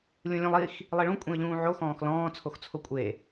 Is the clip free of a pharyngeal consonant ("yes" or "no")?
no